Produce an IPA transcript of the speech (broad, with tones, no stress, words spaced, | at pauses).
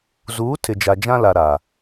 zuː˨˦ tʰɪ˨d͡ʒa˨d͡ʒã˦la˨ ɾa˨